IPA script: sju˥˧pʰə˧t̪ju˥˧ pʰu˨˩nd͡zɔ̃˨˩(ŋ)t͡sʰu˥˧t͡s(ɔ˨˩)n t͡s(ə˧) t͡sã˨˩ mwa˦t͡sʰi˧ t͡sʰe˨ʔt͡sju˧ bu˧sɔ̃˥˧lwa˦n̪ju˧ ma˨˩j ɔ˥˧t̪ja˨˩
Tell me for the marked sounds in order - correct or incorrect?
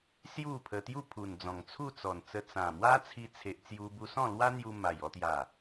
correct, correct, correct

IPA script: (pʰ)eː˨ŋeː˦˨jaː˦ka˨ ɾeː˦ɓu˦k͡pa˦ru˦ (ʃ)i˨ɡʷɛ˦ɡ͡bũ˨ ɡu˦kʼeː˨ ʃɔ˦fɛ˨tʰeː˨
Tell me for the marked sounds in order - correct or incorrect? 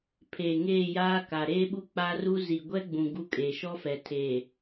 correct, incorrect

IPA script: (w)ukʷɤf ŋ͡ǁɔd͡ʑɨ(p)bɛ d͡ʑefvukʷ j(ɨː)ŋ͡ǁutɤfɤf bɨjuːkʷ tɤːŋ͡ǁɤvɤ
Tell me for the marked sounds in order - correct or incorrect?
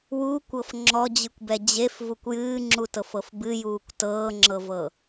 correct, incorrect, correct

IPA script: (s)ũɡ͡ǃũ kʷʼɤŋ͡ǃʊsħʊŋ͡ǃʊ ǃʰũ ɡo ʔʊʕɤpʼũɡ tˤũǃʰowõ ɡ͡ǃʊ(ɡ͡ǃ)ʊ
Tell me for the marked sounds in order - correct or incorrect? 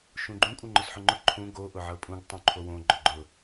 incorrect, correct

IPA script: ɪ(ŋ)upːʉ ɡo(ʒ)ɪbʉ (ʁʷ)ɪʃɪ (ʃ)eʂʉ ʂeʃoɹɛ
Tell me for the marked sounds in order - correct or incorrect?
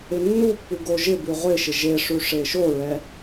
incorrect, correct, correct, incorrect

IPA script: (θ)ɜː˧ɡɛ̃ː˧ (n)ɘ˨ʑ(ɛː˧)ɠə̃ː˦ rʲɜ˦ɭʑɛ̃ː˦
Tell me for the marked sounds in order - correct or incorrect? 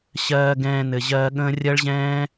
incorrect, correct, incorrect

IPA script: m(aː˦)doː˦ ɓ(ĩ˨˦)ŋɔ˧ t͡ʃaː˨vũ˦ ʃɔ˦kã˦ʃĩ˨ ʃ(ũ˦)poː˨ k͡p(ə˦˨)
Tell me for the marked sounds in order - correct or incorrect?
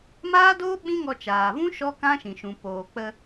correct, incorrect, incorrect, incorrect

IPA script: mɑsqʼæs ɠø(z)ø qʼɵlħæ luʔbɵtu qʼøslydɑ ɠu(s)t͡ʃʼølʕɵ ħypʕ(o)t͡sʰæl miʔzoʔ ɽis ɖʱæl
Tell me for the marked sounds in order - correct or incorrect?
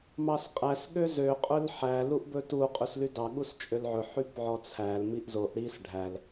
correct, correct, incorrect

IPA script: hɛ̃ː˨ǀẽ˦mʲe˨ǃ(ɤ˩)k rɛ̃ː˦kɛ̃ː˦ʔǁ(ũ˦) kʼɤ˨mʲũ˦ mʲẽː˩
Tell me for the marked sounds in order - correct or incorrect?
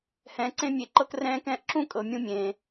incorrect, incorrect

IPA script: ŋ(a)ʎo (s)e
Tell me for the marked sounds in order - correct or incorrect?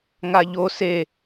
correct, correct

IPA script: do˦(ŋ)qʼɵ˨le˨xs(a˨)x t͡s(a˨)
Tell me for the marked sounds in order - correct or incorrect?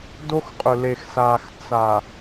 incorrect, incorrect, correct

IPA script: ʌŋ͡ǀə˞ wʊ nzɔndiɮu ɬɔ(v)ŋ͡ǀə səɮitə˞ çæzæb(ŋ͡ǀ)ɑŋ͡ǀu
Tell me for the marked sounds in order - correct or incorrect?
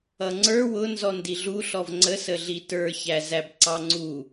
correct, incorrect

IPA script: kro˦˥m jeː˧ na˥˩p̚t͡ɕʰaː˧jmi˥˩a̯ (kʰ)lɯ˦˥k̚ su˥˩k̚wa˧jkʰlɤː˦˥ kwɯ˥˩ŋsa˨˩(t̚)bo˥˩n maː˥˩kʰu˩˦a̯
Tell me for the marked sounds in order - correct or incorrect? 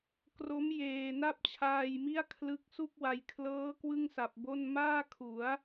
correct, incorrect

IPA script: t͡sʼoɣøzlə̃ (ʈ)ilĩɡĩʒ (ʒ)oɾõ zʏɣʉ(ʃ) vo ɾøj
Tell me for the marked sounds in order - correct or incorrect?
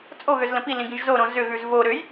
incorrect, incorrect, incorrect

